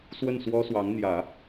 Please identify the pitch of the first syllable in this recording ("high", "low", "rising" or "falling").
falling